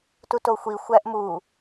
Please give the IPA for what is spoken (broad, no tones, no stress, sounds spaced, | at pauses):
t u t o xʷ i xʷ æ ʔ m u